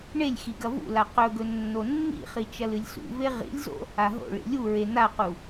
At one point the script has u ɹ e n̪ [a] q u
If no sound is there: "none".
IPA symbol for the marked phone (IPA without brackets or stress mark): a